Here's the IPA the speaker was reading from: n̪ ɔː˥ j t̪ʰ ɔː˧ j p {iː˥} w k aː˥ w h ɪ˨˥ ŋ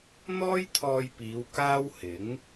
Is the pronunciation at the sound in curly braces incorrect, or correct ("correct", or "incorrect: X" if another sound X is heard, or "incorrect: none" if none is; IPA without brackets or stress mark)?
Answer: incorrect: iː˨˧